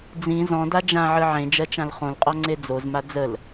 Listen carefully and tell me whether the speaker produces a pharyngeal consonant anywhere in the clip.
yes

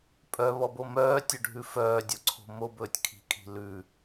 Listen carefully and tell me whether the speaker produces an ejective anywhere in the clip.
yes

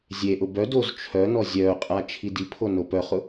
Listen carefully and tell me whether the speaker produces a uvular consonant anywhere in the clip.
yes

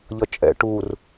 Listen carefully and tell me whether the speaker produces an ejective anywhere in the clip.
yes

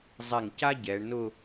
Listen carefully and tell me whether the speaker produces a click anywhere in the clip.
no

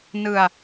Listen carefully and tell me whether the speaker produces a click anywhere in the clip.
no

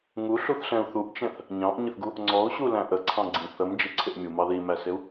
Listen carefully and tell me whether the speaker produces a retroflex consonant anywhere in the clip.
no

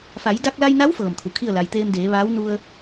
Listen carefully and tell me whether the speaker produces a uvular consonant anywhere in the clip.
no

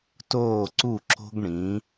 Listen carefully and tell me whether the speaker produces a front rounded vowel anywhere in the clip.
no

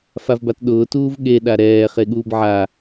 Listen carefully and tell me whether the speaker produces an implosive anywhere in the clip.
yes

